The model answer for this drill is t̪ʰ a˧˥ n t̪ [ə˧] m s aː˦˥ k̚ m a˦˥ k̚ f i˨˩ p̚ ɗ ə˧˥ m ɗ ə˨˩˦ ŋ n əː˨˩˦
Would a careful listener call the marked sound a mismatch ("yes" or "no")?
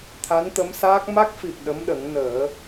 yes